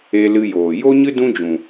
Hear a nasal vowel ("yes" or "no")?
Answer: yes